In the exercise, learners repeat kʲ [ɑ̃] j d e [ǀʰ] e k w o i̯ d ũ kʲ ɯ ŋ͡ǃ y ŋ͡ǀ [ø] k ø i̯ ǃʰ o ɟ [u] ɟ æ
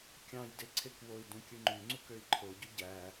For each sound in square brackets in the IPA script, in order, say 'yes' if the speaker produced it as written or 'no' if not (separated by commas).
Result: yes, yes, no, no